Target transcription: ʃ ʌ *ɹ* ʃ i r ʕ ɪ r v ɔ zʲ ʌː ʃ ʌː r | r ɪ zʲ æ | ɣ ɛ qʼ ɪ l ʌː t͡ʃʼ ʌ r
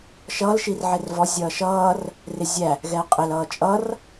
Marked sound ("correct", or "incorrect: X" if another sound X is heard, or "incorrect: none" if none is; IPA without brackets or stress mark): incorrect: l